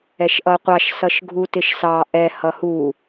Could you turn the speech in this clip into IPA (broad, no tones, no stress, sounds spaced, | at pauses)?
ɛ ʃ ʔ ʌ qʷ ɑ ʃ s ʌ ʃ ɡʱ u t ɪ ʃ s ɑ ʔ ɛ h ʌ h u